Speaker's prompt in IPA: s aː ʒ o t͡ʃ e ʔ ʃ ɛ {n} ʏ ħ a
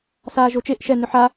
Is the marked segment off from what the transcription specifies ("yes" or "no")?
no